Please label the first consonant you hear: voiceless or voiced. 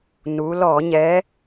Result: voiced